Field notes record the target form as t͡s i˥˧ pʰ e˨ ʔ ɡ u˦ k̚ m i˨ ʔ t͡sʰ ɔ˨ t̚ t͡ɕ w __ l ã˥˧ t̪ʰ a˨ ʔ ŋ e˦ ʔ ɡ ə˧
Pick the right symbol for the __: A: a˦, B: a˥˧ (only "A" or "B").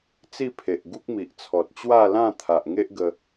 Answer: B